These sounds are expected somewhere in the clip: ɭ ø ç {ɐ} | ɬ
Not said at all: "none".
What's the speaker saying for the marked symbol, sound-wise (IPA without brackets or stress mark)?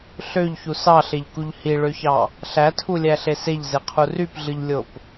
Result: ɑ